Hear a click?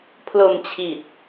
no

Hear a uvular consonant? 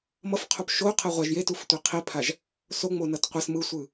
yes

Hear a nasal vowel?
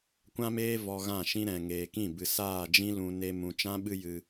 yes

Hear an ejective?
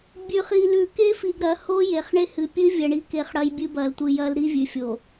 no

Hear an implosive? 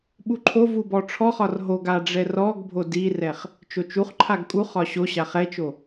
yes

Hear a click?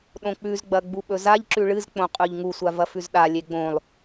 yes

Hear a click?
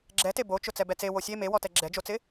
yes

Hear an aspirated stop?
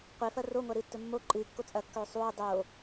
no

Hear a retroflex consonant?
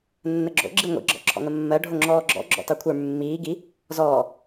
yes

